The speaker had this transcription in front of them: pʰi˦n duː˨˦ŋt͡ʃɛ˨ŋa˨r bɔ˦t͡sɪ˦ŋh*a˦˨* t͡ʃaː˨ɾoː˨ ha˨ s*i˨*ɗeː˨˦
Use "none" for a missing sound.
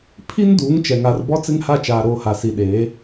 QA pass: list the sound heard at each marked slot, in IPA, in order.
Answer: a˦˨, i˨

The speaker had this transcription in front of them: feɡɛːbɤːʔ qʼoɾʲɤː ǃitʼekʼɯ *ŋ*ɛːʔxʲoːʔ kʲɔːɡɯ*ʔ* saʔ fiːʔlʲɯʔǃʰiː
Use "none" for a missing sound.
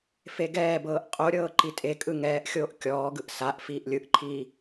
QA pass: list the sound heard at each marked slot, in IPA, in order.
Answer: ŋ, ʔ

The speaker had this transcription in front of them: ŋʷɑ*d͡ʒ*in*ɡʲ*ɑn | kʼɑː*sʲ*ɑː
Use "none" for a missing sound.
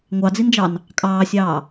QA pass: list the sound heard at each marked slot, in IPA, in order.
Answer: d͡z, d͡ʒ, sʲ

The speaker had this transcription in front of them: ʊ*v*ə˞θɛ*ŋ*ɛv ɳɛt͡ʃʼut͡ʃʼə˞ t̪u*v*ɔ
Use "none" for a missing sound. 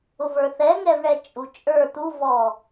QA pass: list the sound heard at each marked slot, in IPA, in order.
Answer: v, ŋ, v

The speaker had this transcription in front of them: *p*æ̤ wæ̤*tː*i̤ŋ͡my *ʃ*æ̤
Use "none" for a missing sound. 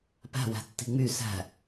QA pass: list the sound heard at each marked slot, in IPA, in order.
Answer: p, tː, s

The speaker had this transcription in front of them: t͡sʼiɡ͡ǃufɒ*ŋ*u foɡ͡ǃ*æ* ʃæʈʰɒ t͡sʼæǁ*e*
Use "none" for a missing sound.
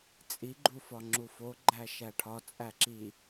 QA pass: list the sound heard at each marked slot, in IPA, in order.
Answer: ŋ͡ǁ, æ, i

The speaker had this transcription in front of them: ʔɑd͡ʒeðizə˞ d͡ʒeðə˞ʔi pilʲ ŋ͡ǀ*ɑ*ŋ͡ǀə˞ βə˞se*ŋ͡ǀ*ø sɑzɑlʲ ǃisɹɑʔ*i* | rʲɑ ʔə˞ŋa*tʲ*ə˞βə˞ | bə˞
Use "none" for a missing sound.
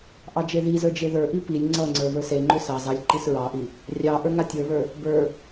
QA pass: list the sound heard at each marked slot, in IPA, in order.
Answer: ʌ, ŋ͡ǃ, i, tʲ

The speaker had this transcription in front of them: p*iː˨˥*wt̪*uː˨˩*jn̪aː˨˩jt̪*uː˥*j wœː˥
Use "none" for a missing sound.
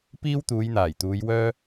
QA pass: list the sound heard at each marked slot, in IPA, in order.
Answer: iː˥, uː˨˧, uː˨˧

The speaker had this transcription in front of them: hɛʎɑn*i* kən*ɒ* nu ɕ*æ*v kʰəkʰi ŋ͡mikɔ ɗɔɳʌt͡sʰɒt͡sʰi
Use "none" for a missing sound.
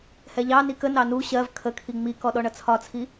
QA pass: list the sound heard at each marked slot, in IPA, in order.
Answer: i, ɑ, ɜ

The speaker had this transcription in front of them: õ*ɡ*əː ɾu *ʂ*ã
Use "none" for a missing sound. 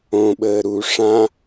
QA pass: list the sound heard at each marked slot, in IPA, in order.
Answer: ɓ, ʂ

